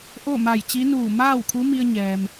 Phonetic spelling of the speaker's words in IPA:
ʔ o˥˨ m a˧˩ j t͡ɕ i˧˥ n uː˧˩ m aː˥˨ w kʰ u˧˥ m i˧ ə̯ ɲ ɛː˩ m

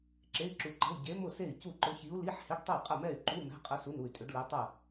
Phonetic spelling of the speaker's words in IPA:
ǁ e˧˥˧ i̯ ǁ u˧˥ ǃ ə̤˧˥˧ u̯ ɟ e˧˥ m ʊ˥˨ s e˥˨ i̯ c u˥˨ ǃ ʊ˧˥ ç i˧˥ u̯ l i˧˥˧ ħ h ɪ˧˥˧ ɖ tˤ ɛ˥˨ qʼ ə˥˨ m ɛ˥˨ y̯ ǃ u˧˥˧ m ɛ̤˧˥˧ qʼ ə˧˥ s u˧˥˧ n u˥˨ y̯ tʼ ʏ˧˥ ɖ l i˧˥ tˤ ə˥˨

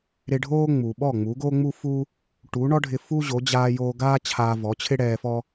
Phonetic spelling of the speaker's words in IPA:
ɾ ɪ˧ ɖʱ oː˥ ŋ͡m u˩ ɓ ɔ˥˩ ŋ͡m u˩˥ ɡ oː˥ ŋ͡m u˥ f u˥ | ʈ u˩˥ ɳ ɔ˥ ɖʱ ɪ˧ f u˥ ʑ o˩˥ d͡ʑ aː˧ j oː˧ ɡ aː˥ t͡ɕʰ aː˧ v ɔ˩˥ t͡ɕʰ ɪ˥ ɽ ɛː˧ f ɔ˥

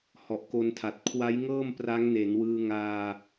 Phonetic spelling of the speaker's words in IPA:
h ɔ˨˩ ʔ k o˧ n tʰ a˨˩ t̚ kʰ w a˦˥ j ŋ ɤː˥˩ m p r a˦˥ ŋ n e˩˦ n w ɯː˧ ŋ aː˧

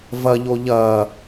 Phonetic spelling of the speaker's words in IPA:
v ɐ ʎ o ʎ ɐ

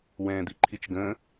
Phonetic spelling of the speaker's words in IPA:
w ɛ̃ː d̪ i ǃʰ i t͡ʃ ɡ ə̃ː

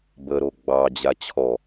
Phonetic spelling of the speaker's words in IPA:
b ə ɾ o ɡ͡b ɑ d͡ʑ a t͡ɕʰ ɔ

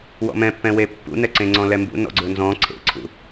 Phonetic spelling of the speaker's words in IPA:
w ɔ̰ m ɛ̃ pː ɛ̃ w e pː ṵ n ɛ ǀ ẽ ŋ͡ǀ ɔ̃ l ɛ m b ṵ n ɔ̰ ɡ͡ǀ ɵ n z ɔ̃ ǀʰ ḛ ǀʰ ṵ

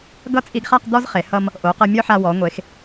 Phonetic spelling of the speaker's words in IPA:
ɡ ʌ˥˧ t͡sʼ i˧ ɡ χ a˥˧ q d̪ ɔ˥ z χ e˩˧ h ʌ˧ m | ʔ o˩˧ q ʌ˧ mʲ ɔ˥ ħ a˧ w ɔ˩˧ ŋʷ e˩˧ x

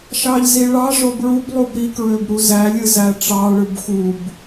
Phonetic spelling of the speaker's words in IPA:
ʃ ɑ ʎ z i ɭ ɑ ʐ o b ɹ u b lˠ u b ɾ i k ɹ ø b ɾ u z æ lʲ ɯ z æ ʈ͡ʂ ɑ ɭ ɯ b x u b

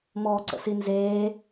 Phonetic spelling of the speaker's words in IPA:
m ɔː ǀ ə̰ s i n z eː

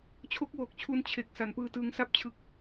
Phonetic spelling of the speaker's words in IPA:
t͡ɕʰ o˦˥ k̚ w oː˨˩ k̚ t͡ɕʰ u˧ n t͡ɕʰ e˨˩ k̚ s a˨˩ n p ɯː˧ t ɯː˧ ŋ s a˥˩ p̚ t͡ɕʰ ɯ˦˥ k̚

